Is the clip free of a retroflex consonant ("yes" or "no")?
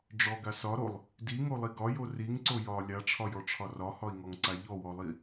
no